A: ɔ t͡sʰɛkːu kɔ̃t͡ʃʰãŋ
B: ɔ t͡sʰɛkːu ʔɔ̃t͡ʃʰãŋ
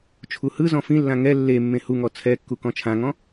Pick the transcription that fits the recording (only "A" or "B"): A